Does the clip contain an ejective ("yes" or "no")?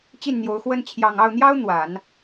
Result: no